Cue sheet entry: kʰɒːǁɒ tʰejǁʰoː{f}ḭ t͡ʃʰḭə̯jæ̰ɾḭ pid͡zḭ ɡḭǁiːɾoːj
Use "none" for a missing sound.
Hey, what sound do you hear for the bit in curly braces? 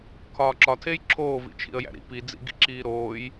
v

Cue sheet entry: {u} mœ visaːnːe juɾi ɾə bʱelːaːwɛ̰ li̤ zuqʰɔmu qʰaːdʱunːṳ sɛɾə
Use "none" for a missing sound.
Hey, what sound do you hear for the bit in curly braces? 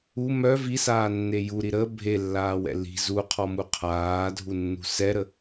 u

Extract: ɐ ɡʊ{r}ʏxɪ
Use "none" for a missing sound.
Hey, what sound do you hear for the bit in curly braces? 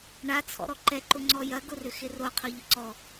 r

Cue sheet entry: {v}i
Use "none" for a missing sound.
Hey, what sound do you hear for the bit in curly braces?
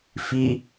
f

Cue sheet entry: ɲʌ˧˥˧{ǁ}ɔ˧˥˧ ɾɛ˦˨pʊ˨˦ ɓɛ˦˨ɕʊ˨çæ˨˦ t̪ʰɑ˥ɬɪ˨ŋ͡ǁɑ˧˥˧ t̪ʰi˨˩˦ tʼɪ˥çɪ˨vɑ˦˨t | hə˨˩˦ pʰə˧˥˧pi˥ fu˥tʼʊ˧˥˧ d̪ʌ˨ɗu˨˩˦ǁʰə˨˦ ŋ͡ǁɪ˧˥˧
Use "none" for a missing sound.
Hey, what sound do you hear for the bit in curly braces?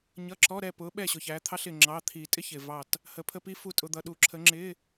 ǁ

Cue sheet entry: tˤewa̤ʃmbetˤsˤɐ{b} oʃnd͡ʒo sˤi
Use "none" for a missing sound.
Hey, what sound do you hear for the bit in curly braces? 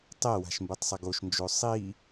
ɡ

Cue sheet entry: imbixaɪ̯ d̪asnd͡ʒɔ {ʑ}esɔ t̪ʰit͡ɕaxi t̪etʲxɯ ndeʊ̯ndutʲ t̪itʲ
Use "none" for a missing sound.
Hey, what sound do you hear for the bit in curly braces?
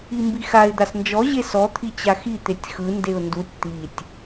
ʑ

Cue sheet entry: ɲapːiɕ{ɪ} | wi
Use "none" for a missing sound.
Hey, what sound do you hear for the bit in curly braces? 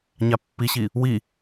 i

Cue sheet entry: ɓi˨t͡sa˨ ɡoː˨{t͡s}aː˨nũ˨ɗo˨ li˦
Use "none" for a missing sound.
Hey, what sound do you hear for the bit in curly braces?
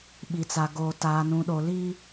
t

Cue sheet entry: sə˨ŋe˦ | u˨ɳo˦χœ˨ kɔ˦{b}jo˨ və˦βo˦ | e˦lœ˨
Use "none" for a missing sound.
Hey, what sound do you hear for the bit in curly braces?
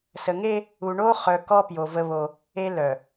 p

